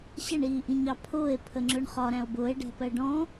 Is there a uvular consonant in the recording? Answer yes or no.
yes